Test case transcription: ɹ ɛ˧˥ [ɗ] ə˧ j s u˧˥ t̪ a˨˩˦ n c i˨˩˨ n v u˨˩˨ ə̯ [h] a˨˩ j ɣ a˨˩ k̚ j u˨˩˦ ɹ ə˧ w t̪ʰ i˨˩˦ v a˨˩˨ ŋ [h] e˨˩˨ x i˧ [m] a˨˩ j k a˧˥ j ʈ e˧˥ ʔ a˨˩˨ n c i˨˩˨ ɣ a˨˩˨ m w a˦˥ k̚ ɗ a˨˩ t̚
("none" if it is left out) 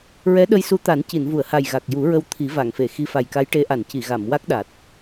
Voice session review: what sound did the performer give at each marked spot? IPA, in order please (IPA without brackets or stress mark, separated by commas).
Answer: ɗ, h, f, f